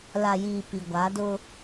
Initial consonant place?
alveolar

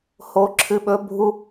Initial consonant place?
glottal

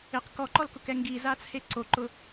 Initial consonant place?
uvular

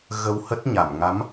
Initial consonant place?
velar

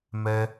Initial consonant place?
labial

